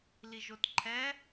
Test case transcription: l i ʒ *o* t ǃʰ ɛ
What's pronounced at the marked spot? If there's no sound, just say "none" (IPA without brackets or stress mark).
o